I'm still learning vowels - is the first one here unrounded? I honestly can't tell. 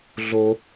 no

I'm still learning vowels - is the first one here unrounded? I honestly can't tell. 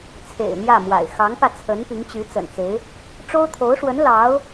yes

